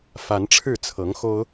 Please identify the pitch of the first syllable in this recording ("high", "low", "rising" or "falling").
rising